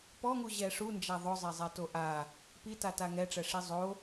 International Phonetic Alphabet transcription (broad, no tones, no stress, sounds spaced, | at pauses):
p ɔ ŋ u ʑ ɛ ʂ u n d͡ʒ a ðˤ ʊ zˤ ɛ zˤ ɛ t o ʔ a | p i t a t a ŋ ɛ ʈ͡ʂ ɛ ʂ i zˤ o